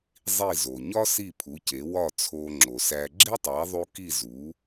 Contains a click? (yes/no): yes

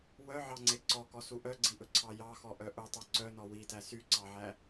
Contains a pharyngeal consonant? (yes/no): yes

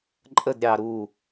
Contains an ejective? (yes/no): yes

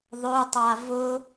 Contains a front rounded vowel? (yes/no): yes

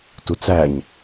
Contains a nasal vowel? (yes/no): no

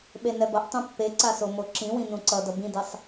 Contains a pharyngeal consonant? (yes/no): no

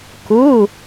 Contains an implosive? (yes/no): no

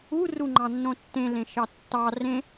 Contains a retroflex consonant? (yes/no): no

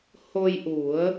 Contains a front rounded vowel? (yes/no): no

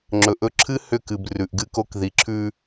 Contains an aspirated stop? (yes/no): yes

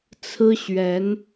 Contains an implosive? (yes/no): no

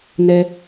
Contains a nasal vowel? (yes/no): no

